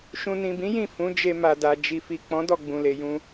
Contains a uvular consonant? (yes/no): no